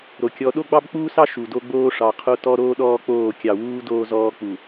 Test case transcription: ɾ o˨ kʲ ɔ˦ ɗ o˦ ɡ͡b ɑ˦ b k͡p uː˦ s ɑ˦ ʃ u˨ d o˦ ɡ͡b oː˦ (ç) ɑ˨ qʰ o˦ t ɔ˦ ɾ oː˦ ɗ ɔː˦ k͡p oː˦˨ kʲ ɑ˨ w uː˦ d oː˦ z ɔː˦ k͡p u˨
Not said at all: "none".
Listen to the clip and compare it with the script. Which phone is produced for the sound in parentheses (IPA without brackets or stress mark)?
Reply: ʂ